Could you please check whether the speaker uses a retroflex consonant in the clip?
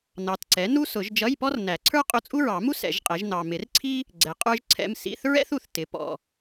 no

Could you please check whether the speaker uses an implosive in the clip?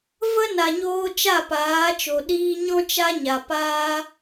yes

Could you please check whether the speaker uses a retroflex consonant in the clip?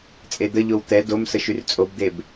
no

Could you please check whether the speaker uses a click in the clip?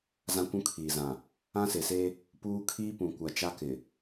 no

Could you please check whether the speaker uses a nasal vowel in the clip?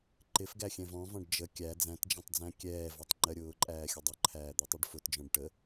yes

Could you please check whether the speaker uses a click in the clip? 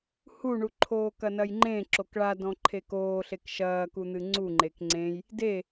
yes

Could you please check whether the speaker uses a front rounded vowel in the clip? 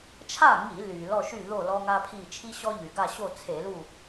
yes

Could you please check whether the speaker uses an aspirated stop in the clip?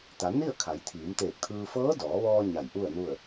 yes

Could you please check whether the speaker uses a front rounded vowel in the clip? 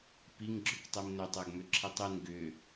yes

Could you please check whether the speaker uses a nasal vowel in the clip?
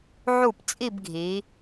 no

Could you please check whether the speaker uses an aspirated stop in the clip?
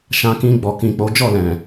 no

